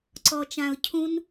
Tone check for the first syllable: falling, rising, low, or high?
low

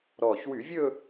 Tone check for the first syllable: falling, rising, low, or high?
low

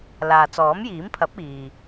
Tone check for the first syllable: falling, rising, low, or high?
low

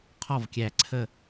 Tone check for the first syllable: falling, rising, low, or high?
falling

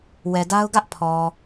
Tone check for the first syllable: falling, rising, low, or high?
low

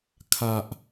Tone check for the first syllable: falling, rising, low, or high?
high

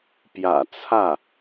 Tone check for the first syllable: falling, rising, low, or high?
low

